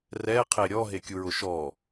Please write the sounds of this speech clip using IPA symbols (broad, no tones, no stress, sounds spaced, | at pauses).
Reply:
r ɛ qʰ e ɾʲ ɔ ɦ e kʲ u ɹ ʊ ʃ ɔ